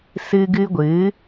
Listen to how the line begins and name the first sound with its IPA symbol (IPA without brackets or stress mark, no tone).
s